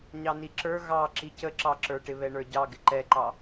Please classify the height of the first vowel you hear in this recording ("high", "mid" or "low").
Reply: low